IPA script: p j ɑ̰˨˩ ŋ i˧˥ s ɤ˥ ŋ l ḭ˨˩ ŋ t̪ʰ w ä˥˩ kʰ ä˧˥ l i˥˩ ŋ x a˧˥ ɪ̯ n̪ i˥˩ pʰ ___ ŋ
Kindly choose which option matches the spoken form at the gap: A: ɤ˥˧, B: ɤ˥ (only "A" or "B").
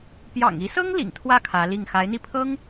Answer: B